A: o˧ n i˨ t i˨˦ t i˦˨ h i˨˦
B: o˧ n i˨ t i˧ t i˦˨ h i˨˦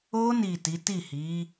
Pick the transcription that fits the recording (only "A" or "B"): A